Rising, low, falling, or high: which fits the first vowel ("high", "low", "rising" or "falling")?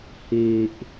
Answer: low